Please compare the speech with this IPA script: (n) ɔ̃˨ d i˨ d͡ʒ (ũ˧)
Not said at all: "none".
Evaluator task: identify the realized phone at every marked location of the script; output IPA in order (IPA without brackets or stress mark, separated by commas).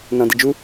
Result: n, u˧